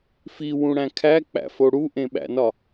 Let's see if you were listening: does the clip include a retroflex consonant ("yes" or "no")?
yes